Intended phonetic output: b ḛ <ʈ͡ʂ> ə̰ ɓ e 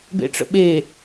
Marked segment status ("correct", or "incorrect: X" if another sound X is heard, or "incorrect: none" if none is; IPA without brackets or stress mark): correct